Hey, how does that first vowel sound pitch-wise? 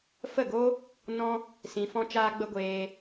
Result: falling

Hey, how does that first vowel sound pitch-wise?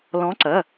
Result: rising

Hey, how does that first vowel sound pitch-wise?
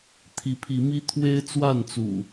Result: rising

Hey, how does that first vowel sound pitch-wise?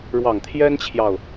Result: low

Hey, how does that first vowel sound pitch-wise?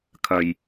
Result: low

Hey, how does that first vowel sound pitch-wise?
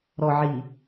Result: low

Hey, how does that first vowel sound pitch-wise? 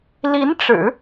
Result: rising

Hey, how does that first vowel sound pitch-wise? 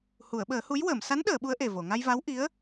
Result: low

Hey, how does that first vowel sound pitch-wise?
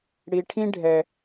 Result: low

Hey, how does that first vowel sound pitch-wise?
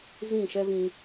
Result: falling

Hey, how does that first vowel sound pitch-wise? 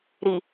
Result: low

